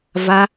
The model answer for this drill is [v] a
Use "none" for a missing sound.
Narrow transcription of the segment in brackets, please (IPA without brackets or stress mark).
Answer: v